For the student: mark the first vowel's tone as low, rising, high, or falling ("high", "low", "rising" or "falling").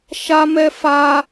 high